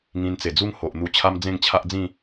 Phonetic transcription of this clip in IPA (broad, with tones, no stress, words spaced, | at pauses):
ŋĩ˧nt͡se˨˩d͡zu˦ŋ ho˨ʔ n̪u˧t͡ɕʰa˦m d͡zẽ˥˧ŋt͡ɕʰa˦ʔd͡zĩ˥˧